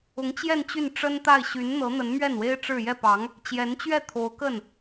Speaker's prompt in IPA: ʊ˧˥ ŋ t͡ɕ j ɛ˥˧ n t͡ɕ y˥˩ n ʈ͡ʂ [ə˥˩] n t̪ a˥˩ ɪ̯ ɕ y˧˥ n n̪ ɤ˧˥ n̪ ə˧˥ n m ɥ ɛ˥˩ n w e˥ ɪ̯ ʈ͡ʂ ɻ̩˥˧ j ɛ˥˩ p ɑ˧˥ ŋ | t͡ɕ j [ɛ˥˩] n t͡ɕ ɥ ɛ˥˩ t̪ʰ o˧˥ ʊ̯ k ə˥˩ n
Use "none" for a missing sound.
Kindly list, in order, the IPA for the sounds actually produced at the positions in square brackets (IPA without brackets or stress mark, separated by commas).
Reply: ə˥, ɛ˧˥